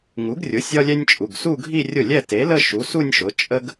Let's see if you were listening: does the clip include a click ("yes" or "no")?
no